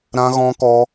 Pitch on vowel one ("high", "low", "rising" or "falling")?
high